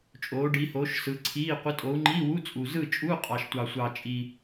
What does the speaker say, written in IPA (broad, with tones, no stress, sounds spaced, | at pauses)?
t͡ʃʼ oː˨˦ ɖ i˨˦ h oː˨˦ ʃ s ɯ˨˦ ǀʰ iː˧˥˧ qʷ ɯ˨˦ tʼ oː˨˦ u̯ ŋ͡ǃ iː˧˥˧ w u˧˥˧ t͡sʼ u˨˩ z ɯ˥˨ t͡ʃʼ u˧˥˧ qʼ ɑ˨˩ ʃ tʷ ɑ˨˩ sʷ ɑ˨˩ t͡ʃʼ i˨˩